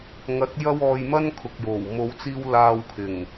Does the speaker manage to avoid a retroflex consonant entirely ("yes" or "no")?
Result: yes